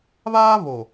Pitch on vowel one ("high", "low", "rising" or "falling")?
high